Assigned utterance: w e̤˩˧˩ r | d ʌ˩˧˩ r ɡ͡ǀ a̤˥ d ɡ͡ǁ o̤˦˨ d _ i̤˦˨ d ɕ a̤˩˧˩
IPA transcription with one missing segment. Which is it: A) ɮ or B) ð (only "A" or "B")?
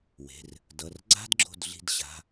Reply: A